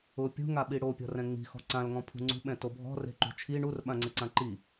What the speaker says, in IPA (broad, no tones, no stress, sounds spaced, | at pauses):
ʊ pʲ ṳ ŋ a ɓ i ɽ o pʲ ɔ̤ r ɛ̃ ŋ͡m i̤ x ɔ̤ ǀ ã l ŋ ɔ̃ pʰ ṳ ŋ͡ǀ ṳ ɓ ɛ̃ t o bʱ ɔ̤ r e̤ ǃ ṳ t͡ʃʰ i ɳ u r ɓ ã ŋ͡ǀ ɪ ǀ ã ǃ i